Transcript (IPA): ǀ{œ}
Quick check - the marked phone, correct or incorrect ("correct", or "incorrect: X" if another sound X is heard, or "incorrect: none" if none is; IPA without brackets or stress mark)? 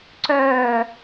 incorrect: œː